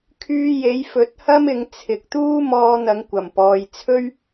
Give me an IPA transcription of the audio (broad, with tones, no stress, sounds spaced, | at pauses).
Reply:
kʰ yː˧ j e˨˥ j f ɵ˨˥ t̚ h ɐ˥ m ɪ˨˧ ŋ t͡sʰ ɪ˨ k̚ t̪ uː˥ m ɔː˧ n̪ ɐ˨˧ ŋ kʷ ɐ˨˩ m p ɔː˨ j t͡sʰ ɵ˥ ɥ